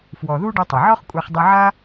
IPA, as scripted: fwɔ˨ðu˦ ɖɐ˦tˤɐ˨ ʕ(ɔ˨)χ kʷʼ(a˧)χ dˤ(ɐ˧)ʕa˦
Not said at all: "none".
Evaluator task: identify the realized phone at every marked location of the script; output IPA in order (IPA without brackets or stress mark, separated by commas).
ɔ˦, a˧, ɐ˧